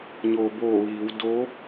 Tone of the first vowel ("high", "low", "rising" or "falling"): low